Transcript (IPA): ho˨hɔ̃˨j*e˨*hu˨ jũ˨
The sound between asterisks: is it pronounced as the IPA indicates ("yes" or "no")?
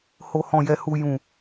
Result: no